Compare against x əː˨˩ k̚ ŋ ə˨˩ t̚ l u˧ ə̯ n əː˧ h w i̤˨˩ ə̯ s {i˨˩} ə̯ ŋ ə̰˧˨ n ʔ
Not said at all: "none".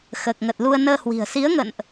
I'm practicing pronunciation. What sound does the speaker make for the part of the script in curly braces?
i˨˦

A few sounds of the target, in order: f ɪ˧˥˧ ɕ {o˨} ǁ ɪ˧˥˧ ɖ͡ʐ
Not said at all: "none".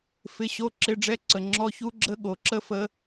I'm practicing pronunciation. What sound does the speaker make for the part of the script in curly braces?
o˧˥˧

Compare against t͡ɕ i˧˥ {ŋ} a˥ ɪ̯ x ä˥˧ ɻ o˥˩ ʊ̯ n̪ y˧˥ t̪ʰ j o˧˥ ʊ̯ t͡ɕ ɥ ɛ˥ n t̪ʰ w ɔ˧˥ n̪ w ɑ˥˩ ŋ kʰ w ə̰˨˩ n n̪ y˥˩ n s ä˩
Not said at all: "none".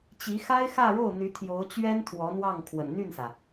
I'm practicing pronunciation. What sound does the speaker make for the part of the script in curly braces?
x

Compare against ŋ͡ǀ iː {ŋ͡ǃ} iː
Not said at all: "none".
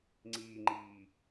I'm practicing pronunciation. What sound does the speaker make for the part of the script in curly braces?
ŋ͡ǃ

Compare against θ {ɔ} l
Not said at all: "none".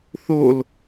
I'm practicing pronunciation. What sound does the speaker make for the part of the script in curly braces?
o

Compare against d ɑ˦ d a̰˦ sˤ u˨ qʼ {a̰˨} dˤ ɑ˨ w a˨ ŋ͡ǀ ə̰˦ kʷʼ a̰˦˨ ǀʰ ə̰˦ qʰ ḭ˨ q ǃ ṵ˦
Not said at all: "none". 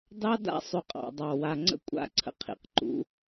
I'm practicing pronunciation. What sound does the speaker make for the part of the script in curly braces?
ɑ̰˨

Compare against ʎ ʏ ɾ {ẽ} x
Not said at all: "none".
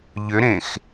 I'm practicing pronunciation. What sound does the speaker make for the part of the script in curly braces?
ẽ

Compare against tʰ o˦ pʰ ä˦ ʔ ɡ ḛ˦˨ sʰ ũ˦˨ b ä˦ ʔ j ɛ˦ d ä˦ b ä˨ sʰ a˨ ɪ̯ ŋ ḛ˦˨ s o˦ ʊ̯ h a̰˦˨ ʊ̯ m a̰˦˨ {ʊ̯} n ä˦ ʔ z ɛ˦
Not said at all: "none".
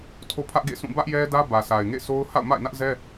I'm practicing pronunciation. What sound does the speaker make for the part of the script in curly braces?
ɪ̯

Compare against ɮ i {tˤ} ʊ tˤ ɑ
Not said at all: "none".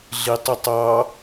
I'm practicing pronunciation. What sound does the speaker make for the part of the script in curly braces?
tˤ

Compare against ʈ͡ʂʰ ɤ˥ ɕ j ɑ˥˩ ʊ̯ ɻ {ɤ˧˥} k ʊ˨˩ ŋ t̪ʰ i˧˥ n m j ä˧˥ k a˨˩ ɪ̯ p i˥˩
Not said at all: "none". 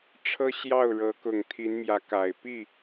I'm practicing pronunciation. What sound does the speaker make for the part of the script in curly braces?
ɤ˧˥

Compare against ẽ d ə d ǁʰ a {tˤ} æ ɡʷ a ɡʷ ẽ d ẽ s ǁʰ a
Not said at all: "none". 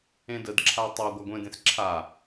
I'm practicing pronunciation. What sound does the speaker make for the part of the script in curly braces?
tˤ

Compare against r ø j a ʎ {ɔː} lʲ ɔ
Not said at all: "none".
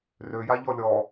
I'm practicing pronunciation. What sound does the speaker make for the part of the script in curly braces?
ɔ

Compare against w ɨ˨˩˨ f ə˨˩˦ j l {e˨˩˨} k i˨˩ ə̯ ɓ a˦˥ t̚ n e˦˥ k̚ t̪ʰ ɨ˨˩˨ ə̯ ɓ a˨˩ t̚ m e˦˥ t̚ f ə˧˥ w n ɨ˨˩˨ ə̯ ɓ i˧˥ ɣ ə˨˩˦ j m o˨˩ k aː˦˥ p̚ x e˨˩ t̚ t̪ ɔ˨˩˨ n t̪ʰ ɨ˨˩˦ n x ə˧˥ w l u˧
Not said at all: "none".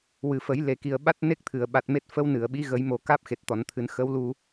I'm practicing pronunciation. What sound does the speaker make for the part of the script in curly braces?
e˨˩˨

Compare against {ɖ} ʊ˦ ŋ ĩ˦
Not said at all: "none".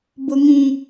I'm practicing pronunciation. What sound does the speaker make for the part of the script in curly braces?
b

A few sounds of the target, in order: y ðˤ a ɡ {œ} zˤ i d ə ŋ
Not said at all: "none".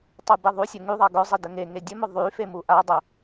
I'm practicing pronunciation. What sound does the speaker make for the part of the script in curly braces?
œ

